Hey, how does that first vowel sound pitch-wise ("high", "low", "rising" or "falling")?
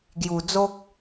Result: low